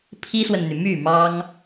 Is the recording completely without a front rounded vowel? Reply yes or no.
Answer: no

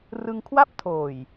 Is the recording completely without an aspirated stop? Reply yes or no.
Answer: no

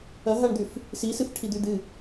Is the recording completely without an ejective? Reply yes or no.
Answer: yes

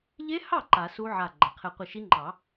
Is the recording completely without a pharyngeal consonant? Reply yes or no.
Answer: no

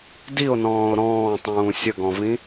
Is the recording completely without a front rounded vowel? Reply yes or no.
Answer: yes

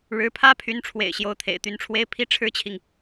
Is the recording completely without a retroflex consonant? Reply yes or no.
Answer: no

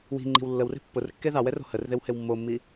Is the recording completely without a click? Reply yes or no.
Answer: no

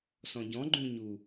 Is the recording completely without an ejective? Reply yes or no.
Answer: yes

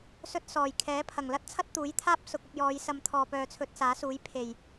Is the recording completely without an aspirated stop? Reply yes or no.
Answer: no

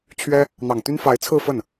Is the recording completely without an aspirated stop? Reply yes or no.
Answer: no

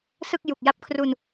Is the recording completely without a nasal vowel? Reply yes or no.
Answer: yes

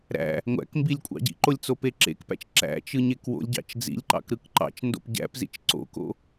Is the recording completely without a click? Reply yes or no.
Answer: no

